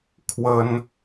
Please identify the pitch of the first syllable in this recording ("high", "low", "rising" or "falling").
high